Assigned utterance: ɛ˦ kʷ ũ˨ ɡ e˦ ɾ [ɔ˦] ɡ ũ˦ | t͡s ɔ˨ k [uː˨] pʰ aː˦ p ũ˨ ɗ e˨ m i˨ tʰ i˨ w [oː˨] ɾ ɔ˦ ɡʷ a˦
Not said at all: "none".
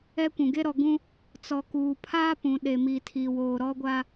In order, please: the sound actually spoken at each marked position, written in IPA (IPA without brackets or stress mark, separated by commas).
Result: ɔ˨, uː˨, oː˨